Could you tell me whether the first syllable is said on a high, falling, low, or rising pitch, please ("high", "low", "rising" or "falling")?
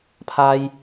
low